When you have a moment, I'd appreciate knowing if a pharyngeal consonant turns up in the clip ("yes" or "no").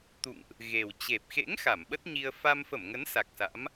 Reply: no